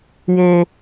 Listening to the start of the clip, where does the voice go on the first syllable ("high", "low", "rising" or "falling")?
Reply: high